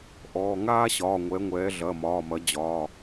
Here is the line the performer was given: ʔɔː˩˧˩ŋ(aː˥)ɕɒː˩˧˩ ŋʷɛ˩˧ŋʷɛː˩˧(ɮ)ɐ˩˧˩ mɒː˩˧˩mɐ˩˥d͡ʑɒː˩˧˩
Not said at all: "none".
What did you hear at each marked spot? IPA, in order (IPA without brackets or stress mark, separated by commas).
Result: aː˥, ɮ